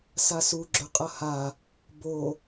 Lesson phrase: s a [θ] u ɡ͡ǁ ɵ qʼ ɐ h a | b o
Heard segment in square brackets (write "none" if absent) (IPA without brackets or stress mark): s